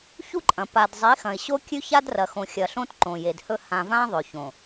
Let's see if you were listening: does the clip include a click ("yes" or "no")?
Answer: yes